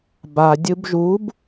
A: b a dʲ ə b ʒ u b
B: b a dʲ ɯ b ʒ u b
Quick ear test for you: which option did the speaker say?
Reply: B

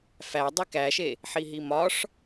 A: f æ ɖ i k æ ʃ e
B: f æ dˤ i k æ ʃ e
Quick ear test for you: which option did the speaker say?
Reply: B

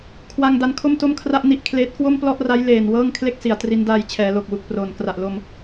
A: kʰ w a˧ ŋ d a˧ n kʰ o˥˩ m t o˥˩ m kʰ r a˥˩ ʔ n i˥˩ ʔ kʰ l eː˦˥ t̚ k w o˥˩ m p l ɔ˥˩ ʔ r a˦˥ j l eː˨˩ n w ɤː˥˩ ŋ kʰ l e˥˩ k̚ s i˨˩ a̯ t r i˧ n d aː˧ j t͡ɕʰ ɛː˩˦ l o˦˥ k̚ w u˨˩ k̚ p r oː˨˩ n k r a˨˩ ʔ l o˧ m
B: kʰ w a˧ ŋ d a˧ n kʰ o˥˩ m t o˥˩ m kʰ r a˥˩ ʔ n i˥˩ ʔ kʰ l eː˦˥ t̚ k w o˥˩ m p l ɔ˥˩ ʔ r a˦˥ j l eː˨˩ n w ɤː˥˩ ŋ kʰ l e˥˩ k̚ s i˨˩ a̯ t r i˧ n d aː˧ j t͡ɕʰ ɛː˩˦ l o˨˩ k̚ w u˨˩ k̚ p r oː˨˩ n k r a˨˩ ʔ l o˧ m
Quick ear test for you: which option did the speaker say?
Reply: B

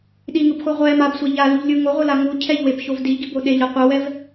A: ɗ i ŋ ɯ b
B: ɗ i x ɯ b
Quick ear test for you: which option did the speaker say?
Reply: A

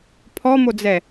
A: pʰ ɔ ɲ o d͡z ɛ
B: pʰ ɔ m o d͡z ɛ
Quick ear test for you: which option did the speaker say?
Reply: B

